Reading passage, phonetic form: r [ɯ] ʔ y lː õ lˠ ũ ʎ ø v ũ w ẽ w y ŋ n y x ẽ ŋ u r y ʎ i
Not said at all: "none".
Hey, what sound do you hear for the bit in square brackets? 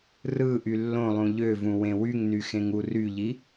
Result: ɯ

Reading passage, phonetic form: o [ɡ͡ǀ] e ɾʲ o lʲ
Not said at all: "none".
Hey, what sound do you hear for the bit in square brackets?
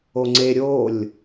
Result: ŋ͡ǀ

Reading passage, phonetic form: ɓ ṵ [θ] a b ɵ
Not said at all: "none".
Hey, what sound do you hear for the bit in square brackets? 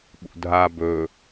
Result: dʱ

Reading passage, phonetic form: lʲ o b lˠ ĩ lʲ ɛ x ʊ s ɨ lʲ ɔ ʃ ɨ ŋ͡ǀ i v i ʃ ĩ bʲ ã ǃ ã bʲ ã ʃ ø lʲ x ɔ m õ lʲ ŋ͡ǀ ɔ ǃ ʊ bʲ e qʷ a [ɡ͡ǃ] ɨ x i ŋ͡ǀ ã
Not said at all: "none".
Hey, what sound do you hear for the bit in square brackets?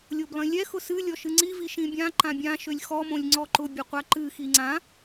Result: ǃ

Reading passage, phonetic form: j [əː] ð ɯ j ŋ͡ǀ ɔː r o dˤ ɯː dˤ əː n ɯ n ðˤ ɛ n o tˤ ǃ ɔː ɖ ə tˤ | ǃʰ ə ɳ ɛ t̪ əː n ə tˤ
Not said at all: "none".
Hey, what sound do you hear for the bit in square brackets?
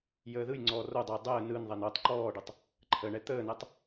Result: əː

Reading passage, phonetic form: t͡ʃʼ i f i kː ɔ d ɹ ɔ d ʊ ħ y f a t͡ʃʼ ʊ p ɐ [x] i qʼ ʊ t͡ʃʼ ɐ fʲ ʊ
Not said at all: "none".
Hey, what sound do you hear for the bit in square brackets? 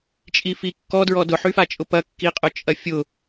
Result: kː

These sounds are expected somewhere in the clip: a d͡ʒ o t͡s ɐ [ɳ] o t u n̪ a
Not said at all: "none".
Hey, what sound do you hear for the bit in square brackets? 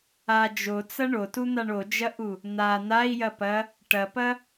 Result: ɳ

